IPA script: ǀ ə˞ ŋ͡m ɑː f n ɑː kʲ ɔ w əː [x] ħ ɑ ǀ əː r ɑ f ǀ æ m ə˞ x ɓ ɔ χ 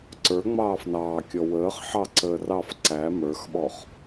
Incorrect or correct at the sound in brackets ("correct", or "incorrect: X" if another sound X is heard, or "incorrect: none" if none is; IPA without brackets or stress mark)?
incorrect: χ